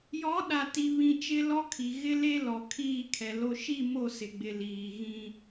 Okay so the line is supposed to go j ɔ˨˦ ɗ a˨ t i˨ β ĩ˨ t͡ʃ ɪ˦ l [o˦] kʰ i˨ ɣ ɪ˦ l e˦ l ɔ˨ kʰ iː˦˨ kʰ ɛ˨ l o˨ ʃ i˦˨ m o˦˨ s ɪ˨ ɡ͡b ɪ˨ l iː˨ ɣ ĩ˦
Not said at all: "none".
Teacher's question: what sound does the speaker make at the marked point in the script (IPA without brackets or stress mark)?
ɔ˦